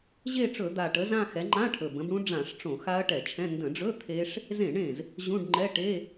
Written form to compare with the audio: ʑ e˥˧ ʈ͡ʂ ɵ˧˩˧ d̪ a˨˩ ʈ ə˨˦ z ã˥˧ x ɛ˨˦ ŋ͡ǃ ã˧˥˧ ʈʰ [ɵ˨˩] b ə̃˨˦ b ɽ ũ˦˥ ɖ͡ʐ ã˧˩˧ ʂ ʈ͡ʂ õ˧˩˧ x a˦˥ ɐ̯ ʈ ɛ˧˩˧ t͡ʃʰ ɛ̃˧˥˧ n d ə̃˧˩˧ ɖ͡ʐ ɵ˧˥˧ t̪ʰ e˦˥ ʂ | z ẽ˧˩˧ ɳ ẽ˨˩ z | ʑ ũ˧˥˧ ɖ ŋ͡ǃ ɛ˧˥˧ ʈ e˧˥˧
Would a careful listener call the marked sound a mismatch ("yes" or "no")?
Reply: no